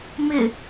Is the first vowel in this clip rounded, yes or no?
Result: no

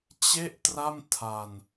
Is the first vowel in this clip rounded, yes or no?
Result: no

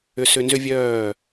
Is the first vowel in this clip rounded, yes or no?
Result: yes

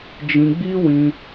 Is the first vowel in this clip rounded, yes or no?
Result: no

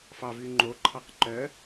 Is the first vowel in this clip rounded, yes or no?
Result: no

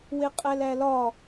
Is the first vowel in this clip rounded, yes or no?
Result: no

